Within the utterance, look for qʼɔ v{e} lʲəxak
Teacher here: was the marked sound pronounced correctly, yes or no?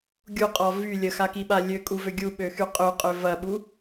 no